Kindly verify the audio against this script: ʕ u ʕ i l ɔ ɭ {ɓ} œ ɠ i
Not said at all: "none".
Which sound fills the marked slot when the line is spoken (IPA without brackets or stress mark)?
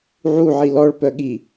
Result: p